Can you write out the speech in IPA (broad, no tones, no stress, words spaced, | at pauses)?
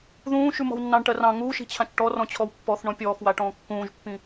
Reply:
ðũː ʃʉmɔ̤wnːɑ̃ɳ ʈɜrɑ̃ ŋuːʃi̤t͡ɕʰãt͡ʃ ʈɔrɔ̃t͡ɕʰɔw pːɔθ ɳɔ̃pʲɔːxwaʈɔ̃ː kːũːʒpːĩ